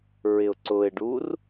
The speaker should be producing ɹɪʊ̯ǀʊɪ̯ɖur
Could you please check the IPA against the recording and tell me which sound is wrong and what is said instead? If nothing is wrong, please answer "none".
none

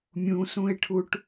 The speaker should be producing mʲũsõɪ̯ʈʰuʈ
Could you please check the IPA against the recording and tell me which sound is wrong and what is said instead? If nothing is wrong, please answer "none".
õ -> ũ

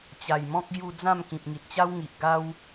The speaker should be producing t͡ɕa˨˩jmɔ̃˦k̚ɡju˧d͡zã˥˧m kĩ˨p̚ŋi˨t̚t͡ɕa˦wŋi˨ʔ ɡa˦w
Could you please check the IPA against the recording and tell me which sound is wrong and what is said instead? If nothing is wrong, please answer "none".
none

